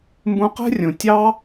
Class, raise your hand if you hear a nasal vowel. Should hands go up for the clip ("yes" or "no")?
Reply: yes